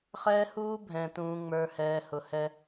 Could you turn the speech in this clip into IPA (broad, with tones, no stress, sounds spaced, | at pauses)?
χ ɛː˦ h uː˦ bʱ ɛ̃˨ t ũː˨ ŋ͡m ə˞˨ h ɛː˨ h ʊ˨ h ɛ˦